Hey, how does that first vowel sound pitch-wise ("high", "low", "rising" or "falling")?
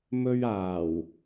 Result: high